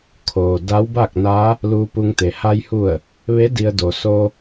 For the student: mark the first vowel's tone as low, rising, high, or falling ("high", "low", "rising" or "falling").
low